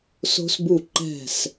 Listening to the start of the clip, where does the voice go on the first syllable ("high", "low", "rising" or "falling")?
high